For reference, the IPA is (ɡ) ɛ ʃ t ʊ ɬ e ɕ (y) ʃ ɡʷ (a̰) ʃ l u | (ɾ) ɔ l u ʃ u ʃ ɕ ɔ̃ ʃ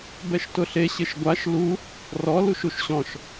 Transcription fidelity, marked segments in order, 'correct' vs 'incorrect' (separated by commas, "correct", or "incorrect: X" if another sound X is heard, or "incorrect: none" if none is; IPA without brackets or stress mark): incorrect: b, incorrect: ɪ, incorrect: a, incorrect: r